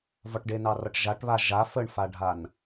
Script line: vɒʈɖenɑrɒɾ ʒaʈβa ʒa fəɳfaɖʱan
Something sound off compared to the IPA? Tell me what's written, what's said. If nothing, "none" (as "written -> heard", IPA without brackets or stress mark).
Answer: ɾ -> ʈ